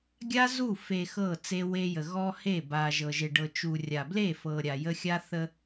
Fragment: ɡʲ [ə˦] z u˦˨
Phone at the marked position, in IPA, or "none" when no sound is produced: a˦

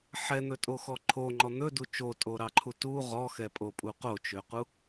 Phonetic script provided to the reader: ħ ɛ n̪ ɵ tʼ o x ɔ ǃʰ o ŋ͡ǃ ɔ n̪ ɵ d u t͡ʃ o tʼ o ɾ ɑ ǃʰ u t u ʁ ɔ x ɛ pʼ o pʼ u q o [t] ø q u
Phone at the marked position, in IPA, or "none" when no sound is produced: t͡ʃ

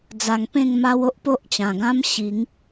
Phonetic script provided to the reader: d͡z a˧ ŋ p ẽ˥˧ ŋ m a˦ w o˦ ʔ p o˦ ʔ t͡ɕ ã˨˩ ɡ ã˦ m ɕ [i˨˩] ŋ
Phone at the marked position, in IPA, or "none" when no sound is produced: i˨˦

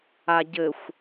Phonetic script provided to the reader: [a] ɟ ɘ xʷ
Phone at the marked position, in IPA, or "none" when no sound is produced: a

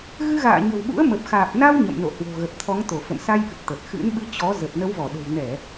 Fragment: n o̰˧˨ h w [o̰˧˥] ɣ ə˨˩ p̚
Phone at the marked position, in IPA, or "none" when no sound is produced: o̤˨˩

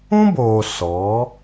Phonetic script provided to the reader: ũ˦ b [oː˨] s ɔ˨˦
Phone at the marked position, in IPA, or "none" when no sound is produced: oː˨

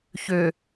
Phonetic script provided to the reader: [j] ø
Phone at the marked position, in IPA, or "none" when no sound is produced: ç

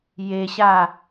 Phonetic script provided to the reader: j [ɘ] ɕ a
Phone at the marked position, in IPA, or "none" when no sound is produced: e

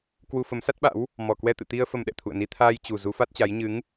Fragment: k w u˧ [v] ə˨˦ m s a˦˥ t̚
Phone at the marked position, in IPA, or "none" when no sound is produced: f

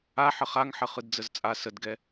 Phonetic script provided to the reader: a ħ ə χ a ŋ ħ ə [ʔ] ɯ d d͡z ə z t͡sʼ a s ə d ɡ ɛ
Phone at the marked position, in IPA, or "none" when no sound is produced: χ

